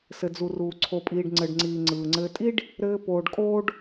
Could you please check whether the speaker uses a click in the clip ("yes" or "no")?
yes